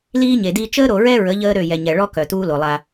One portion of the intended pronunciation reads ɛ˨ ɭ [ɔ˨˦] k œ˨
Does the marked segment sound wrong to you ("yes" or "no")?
yes